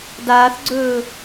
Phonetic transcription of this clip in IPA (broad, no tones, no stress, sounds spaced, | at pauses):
d aː θ ɡ͡ǀ ɵː